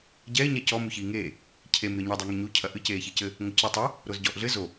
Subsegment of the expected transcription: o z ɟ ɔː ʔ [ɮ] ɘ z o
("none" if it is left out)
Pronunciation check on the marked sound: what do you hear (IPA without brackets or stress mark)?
ɮ